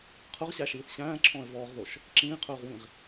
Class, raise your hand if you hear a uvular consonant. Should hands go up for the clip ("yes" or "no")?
yes